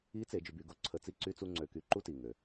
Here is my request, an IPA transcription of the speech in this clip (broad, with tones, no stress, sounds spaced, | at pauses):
i˧˥ t͡s e˩˧ d͡ʒ y˩˧ b y˩˧ ɡ o˧ ǀʰ ə˧ t͡s i˥ ǀ y˥ t͡s u˥ ŋ͡ǀ ø˧ k y˧ ǃ u˥ t i˩ ŋ ø˩